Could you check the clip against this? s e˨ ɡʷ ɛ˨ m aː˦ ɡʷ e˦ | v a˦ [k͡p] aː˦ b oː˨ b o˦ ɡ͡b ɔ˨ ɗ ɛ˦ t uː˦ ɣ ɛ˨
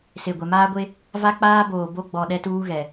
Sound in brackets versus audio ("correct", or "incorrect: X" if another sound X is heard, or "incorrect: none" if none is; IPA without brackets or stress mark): correct